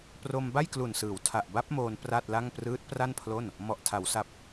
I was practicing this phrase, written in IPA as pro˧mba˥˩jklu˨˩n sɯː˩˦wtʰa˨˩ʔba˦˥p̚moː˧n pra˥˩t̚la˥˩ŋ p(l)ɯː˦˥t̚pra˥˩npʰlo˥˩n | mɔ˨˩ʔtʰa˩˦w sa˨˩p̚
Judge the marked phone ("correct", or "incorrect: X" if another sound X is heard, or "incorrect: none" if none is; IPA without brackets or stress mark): incorrect: r